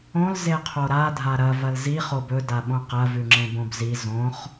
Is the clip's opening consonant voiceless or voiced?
voiced